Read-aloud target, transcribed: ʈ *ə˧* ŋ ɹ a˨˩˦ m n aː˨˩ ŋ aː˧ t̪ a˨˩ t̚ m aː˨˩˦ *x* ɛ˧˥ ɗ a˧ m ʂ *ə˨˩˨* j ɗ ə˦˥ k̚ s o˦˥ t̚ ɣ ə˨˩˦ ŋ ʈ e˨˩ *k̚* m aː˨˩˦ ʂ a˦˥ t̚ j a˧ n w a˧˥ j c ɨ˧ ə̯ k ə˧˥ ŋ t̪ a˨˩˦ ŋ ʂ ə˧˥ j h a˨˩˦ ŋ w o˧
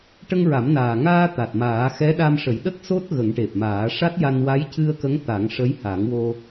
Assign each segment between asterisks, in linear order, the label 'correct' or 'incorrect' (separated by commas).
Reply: correct, correct, incorrect, incorrect